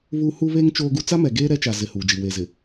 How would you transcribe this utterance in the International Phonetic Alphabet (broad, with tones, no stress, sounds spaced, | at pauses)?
β uː˦ h u˦ β eː˦ ŋ t͡ʃ oː˦ ɡ u˦ t͡s a˦ m ɛ˨ ɡ eː˦ ɾ ɛ˦ t͡ʃ a˨ z ɪ˨ h uː˨ d͡ʒ i˨ w e˨ z ɪ˨